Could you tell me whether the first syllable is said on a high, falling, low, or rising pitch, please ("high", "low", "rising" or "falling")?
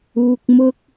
low